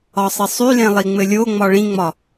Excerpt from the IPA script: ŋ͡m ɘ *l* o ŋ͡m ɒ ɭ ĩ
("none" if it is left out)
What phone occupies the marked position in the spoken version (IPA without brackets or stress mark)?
lʲ